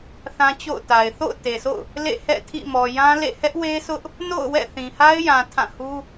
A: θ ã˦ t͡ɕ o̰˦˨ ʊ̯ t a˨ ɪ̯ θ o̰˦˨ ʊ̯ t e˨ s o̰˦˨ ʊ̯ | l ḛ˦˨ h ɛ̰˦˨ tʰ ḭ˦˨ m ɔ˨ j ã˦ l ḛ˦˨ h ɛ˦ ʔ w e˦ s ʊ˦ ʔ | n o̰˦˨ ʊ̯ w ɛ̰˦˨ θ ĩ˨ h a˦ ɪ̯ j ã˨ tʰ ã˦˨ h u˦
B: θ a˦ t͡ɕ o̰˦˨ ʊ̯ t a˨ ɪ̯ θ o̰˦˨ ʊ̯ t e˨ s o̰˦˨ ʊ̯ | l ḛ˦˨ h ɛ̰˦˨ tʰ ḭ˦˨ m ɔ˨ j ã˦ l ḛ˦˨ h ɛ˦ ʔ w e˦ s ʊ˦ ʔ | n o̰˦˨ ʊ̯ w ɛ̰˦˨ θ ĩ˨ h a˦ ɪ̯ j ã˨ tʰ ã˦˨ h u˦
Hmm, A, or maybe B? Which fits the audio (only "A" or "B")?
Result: A